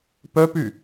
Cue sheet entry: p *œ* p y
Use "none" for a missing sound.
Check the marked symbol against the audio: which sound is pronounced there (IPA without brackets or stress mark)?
œ